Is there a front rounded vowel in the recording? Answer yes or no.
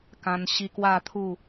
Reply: no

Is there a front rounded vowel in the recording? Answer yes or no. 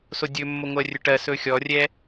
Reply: no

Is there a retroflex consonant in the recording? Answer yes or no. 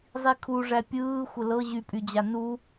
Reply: yes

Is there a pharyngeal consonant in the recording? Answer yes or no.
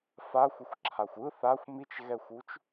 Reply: no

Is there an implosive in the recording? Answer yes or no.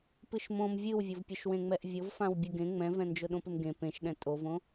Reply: yes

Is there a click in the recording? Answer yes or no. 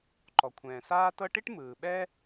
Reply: yes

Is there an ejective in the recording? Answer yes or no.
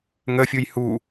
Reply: no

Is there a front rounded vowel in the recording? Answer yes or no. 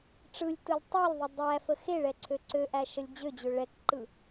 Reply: yes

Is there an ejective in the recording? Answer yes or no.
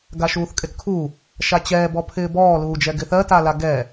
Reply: yes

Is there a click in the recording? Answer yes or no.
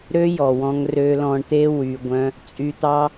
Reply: no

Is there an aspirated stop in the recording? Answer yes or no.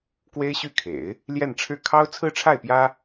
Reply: yes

